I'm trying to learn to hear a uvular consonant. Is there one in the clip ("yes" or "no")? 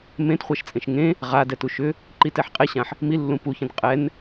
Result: yes